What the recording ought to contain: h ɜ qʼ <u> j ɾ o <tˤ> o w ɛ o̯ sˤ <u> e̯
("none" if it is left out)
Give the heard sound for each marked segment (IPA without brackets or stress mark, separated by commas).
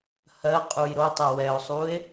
u, tˤ, u